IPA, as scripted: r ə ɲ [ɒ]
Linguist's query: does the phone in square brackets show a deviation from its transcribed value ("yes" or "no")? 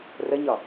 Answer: no